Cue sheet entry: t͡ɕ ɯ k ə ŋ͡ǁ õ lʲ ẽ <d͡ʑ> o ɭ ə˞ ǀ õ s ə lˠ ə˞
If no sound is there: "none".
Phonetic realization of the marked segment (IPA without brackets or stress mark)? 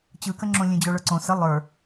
d͡ʑ